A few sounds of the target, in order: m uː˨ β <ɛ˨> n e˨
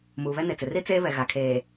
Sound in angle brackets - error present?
yes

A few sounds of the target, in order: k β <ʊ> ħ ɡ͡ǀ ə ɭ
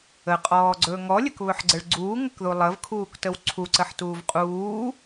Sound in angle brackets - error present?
yes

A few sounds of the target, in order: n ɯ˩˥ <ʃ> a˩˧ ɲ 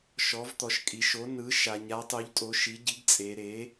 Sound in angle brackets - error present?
no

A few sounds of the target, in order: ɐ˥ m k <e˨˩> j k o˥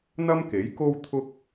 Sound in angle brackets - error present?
yes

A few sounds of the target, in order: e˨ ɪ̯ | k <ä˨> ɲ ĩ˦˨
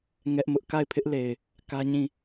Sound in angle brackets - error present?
yes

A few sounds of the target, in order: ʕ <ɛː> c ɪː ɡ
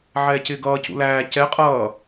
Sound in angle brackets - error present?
no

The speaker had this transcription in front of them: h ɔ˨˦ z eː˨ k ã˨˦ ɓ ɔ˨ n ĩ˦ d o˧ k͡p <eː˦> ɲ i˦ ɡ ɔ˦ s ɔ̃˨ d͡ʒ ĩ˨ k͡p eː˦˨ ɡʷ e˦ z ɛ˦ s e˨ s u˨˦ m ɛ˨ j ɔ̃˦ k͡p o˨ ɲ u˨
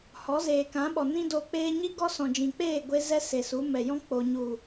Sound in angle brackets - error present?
no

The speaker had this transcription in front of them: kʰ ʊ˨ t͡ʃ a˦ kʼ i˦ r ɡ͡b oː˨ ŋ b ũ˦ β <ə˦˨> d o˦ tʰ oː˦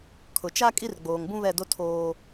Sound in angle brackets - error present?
yes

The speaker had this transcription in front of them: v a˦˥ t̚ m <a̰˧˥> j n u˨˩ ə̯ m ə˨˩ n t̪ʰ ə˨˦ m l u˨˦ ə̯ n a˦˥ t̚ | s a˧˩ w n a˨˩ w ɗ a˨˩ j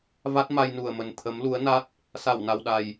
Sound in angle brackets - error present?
yes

